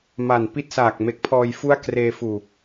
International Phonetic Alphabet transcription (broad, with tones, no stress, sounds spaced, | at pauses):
m a˨˩ n p i˥˩ t̚ s aː˨˩ k̚ m e˨˩ k̚ pʰ ɔː˧ j f u˥˩ a̯ k r eː˧ f uː˨˩